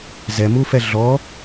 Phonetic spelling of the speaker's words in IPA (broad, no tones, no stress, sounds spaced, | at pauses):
z ɛ m u f ɛ ɮ ɔ